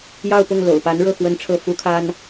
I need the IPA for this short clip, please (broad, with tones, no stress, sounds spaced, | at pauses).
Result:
j ɑ˥˧ ʊ̯ p ʊ˥˩ ŋ l o̰˨˩ ʊ̯ p a˧˥ n ɻ ɤ˥˩ x w ə˥ n ʈ͡ʂʰ ɤ˥˩ f u˥ kʰ a˥ n